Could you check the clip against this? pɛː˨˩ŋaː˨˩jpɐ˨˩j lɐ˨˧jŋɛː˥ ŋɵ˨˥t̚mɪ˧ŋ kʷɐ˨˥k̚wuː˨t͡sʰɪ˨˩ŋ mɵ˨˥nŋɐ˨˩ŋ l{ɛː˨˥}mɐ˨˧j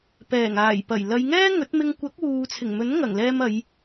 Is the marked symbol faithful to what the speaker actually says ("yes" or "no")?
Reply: no